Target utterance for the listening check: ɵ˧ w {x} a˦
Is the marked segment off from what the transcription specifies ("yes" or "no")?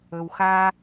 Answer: no